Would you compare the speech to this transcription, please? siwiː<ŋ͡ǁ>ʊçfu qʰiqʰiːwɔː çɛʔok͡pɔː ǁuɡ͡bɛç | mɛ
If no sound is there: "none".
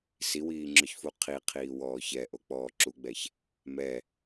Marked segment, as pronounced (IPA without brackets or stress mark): ŋ͡ǁ